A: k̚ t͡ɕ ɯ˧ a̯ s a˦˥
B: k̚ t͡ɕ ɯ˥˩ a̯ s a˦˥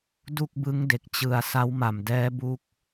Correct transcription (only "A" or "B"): A